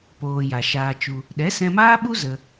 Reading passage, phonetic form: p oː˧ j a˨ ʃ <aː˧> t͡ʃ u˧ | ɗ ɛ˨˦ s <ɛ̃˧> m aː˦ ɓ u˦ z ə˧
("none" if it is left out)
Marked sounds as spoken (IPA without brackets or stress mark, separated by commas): aː˧, ɛ̃˧